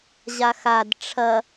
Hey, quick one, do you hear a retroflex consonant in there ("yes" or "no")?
yes